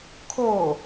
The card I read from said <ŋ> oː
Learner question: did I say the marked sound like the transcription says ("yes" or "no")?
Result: no